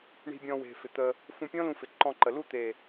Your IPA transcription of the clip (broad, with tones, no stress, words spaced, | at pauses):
ɳi̤˧bʲɔ̃˧we̤˨ fɪ˨t̪ə˧ | fũ˧pʲɔ̃˦lũ˧ fɪ˨ǃɔ̃˧ǃə˨ lu˦˨t̪e˨